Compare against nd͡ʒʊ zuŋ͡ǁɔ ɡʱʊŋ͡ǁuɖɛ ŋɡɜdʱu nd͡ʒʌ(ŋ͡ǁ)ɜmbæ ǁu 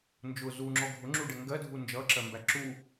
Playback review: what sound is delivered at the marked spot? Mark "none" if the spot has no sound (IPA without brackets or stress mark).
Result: ǁ